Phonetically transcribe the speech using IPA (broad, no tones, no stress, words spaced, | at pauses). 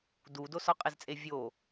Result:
dudo sɒqʼezt͡sʼe vʲo